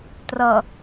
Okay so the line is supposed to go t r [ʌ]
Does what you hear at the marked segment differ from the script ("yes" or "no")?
no